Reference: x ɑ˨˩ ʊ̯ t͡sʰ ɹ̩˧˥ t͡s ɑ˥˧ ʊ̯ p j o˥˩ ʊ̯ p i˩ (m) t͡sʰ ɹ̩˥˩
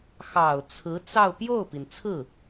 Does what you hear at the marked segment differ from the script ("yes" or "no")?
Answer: yes